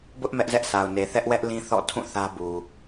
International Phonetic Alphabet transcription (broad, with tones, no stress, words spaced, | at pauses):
bʊ˦ʔ mɛ˦ʔzɛ˦ʔsa˨ʊ̯ne˨ θɛ˦ʔwɛ˦ʔ lĩ˦θɔ̰˦˨ tʰũ˦˨ θä˦bu˨